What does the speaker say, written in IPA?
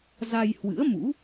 z a˧ j h w ɨ̰˧˥ ə̯ m ṵ˧˥

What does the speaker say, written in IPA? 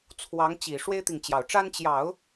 t͡sʰ w ɑ˧˥ ŋ t͡ɕ i˨˩ ʂ w e˥ ɪ̯ t̪ i˨ ŋ t͡ɕ j ɑ˨˩ ʊ̯ ʈ͡ʂ a˥ n t͡ɕ j ɑ˨˩˦ ʊ̯

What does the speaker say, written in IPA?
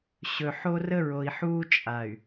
ɕ ɵ˨ ħ o˦ r ə˦ ɹ o˨ i̯ ħ uː˦ t͡ʃʼ a˨ y̯

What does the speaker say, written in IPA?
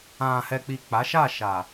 ã˨ h ɛ˨ k͡p i˨ k͡p a˨˦ ʃ a˦˨ ʃ a˨

